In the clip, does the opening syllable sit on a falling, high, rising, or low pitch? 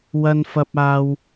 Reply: high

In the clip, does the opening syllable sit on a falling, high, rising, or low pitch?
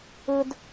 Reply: high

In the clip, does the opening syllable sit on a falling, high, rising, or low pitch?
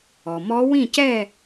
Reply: low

